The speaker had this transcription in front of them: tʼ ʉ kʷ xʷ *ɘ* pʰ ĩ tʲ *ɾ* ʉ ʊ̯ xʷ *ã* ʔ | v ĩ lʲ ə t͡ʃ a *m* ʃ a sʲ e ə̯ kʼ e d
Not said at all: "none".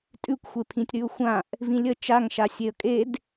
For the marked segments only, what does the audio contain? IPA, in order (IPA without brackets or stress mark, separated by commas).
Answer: e, ɾ, ã, ŋ